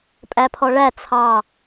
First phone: pʼ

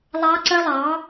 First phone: lˠ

